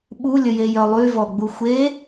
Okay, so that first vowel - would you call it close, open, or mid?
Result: close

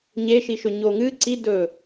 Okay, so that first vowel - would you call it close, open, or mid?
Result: mid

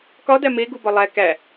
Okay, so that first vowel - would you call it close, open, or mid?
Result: open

